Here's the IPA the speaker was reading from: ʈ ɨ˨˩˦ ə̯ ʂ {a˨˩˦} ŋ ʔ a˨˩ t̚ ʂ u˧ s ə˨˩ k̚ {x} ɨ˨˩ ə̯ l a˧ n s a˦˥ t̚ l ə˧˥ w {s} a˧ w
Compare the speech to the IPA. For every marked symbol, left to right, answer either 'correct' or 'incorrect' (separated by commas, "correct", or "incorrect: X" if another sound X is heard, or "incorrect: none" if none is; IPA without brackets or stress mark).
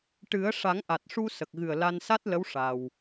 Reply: correct, incorrect: ɣ, incorrect: ʂ